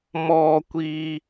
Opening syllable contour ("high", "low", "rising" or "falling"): low